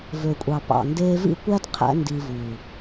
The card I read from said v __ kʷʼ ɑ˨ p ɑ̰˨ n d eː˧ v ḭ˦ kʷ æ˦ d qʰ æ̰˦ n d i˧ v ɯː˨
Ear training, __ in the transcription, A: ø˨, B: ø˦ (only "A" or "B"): A